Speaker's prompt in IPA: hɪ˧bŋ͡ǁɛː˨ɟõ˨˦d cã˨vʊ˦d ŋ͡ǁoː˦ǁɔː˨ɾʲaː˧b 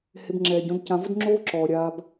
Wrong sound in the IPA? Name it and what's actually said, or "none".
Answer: none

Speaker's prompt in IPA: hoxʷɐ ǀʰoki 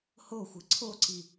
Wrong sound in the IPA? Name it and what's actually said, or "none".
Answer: k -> ǀ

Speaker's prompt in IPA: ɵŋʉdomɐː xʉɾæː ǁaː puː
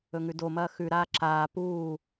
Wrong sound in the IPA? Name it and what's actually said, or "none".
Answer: æː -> aː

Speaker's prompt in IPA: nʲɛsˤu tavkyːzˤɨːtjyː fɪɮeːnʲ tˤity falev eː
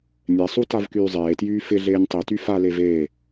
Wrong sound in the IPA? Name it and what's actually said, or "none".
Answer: ɨː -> eː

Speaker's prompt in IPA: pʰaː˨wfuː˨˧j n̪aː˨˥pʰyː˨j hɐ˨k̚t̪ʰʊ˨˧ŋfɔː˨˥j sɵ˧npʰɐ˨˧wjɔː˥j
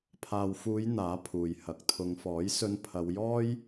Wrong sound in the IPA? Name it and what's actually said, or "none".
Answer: yː˨ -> uː˨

